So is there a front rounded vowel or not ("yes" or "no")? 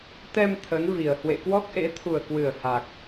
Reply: no